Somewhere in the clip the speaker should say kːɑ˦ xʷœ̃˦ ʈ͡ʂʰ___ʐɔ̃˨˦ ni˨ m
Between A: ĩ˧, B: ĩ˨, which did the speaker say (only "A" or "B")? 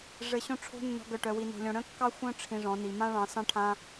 A